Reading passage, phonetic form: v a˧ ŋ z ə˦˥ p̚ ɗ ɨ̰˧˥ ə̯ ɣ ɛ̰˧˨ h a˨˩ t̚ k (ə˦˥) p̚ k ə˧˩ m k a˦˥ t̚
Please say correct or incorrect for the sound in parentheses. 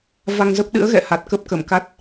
correct